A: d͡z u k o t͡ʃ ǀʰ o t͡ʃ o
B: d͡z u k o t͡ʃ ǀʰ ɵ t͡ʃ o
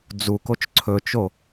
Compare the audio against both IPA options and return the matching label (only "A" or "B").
B